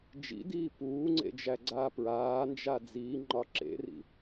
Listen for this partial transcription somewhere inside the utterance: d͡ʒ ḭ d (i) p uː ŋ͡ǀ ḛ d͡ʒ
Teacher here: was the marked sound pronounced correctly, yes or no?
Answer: no